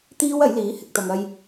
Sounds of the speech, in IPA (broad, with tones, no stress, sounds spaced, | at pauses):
t̪ iː˥ w ɐ˨˥ j l iː˨˥ h ɪ˨ k̚ t̪ ɐ˨ ŋ ɐ˧ j